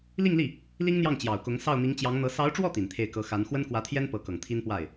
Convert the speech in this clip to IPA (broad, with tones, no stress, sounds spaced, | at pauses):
l i˥˧ ŋ l i˥˩ | l i˥ ŋ n̪ j ɑ˥˩ ŋ t͡ɕ j ɑ˨˩ ʊ̯ k ʊ˧˥ ŋ s ɑ˥˩ ʊ̯ n̪ i˧˥ ŋ t͡ɕ j ɑ˧˥ ŋ n̪ ɤ˧˥ s ɑ˧˥ ʊ̯ ʈ͡ʂ w ɔ˥˩ t̪ i˨˩ n t̪ʰ e˥˩ ɪ̯ k ɤ˧˥ x a˧˥ n x w ə˥ n k w ä˧˥ t̪ʰ j ɛ˥ n p ɤ˧˥ k ɤ˨˩ ŋ t̪ʰ i˥ n p w a˥˩ ɪ̯